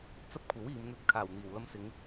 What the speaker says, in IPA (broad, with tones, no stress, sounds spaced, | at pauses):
t͡s ɐ˥ p̚ kʷʰ ɐ˨˥ w iː˨˧ m n̪ ɵ˧ t̚ kʰ aː˨˩ w n̪ iː˨˩ w l ɐ˧ m s ɪ˨˧ ŋ